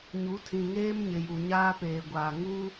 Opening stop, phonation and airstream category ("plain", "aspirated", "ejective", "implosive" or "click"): aspirated